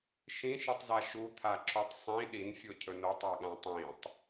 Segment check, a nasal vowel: present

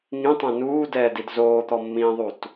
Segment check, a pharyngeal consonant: absent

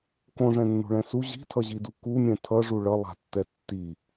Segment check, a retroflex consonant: present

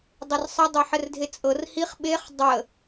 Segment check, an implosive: present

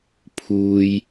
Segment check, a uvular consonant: absent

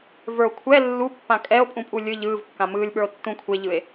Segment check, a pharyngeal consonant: absent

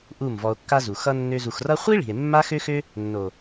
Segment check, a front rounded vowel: present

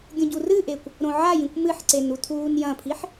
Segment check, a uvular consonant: absent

